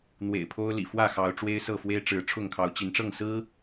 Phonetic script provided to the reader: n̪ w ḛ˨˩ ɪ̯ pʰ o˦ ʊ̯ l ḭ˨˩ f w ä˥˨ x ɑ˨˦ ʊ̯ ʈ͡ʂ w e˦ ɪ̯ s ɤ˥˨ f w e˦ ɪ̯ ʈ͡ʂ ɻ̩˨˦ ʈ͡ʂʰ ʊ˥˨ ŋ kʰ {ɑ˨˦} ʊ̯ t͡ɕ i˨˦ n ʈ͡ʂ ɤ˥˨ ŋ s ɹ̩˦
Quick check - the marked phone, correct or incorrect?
correct